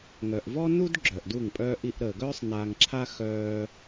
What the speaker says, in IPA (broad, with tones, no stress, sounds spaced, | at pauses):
ŋ œ˨ ʔ v ɔ˦ n u˦ d ɡ͡ǁ œ˨ ʔ d u˦˨ ŋ pʼ œː˦ ʔ i˧ ʔ ɾ əː˨ ɡ œː˦ sˤ n aː˧ ŋ ǁʰ a˦ x œː˧